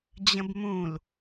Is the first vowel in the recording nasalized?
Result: yes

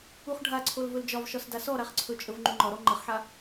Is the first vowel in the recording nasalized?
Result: no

